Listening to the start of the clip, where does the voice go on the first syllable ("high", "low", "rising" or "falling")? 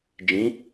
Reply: rising